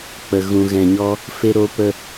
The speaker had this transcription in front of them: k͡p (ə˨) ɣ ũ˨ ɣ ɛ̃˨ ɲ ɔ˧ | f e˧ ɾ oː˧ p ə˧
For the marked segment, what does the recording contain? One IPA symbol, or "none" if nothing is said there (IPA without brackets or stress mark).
ə˨